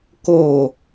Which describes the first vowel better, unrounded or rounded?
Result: rounded